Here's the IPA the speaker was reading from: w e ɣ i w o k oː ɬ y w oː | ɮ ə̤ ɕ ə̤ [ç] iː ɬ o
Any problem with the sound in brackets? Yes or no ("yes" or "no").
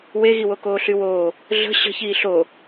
no